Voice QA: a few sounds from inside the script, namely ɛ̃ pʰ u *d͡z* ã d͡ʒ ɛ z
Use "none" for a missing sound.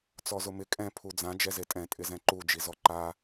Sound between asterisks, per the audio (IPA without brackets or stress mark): d͡z